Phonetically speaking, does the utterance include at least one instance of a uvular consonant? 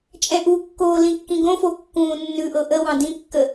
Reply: no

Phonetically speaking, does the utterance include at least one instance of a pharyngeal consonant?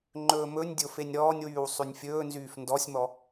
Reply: no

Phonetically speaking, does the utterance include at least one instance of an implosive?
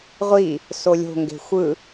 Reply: no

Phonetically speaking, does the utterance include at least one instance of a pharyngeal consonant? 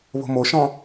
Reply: no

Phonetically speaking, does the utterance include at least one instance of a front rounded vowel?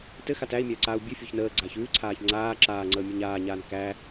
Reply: no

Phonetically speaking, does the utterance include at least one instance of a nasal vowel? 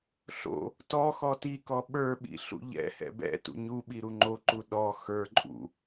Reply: no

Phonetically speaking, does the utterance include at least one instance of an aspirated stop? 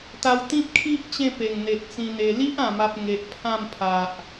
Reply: yes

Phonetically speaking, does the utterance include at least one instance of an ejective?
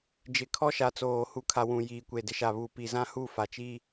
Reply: no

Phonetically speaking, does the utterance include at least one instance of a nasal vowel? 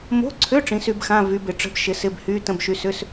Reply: yes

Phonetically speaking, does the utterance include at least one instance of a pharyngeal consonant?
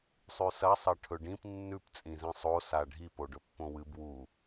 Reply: no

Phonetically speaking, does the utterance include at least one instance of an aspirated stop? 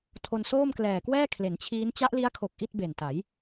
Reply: yes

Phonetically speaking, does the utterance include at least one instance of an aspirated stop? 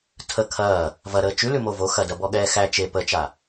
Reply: yes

